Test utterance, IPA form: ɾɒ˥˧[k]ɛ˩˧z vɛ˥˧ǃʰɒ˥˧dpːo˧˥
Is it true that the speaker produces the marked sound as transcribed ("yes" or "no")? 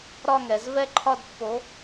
no